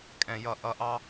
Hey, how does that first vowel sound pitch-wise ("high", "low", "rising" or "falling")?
low